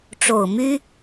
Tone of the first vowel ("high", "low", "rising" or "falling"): low